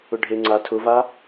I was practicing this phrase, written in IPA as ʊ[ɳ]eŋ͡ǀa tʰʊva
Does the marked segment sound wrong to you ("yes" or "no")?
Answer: yes